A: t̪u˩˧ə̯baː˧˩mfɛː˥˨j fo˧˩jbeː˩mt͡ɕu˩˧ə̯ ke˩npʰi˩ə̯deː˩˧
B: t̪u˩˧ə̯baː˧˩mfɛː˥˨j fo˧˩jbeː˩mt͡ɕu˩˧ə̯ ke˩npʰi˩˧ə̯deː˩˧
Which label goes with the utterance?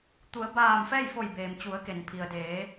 A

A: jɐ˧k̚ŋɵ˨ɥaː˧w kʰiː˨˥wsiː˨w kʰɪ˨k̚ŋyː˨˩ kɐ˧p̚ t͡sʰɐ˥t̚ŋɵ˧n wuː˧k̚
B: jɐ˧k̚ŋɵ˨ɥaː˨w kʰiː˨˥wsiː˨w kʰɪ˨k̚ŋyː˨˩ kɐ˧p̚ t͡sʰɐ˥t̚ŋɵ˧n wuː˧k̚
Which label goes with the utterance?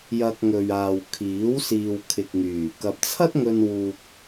B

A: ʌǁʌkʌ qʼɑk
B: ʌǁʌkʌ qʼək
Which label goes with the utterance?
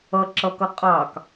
A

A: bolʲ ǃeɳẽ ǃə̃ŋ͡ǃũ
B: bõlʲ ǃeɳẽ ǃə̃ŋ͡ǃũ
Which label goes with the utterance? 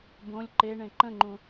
B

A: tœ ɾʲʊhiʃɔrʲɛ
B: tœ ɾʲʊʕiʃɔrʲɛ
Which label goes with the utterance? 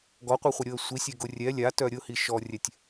A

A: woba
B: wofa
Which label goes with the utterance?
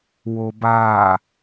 A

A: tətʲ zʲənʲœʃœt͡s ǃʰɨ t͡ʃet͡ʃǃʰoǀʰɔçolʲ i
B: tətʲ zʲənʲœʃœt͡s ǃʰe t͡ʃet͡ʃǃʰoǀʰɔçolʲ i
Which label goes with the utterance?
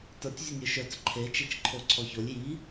B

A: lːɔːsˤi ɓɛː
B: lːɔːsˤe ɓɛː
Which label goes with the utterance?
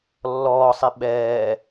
A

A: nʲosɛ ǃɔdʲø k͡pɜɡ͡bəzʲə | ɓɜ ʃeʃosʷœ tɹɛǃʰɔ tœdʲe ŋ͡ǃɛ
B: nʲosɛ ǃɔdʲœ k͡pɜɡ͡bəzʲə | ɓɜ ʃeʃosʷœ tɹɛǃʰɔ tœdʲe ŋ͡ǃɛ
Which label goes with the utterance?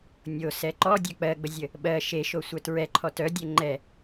B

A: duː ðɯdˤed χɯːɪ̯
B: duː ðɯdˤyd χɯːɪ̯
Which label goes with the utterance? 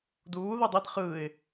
A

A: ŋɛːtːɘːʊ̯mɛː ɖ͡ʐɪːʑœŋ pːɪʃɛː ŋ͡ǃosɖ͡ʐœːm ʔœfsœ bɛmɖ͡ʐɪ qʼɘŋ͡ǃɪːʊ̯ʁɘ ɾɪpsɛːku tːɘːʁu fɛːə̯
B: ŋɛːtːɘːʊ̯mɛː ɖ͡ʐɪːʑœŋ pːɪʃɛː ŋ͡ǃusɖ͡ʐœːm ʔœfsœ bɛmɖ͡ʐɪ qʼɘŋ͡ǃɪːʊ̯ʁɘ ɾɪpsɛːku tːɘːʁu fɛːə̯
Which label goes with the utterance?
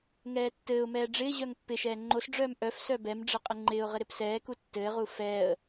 A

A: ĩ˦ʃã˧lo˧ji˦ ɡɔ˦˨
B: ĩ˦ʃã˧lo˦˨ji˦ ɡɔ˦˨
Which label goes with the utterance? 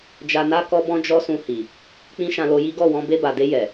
A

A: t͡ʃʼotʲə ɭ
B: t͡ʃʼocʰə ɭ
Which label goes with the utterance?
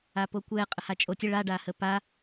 A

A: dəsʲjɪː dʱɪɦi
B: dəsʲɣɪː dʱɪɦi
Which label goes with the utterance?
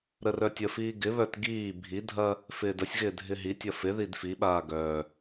B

